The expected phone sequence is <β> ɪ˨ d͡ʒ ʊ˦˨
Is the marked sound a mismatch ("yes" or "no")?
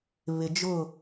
no